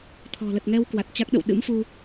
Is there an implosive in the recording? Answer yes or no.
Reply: yes